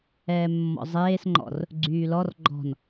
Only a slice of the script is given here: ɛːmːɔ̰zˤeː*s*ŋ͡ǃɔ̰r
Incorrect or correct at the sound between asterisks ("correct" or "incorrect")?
correct